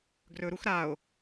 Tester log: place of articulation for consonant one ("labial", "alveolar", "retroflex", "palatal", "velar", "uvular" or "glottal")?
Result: velar